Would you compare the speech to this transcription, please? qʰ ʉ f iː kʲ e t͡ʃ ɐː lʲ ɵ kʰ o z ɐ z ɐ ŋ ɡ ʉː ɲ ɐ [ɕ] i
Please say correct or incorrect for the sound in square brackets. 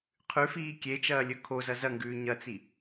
incorrect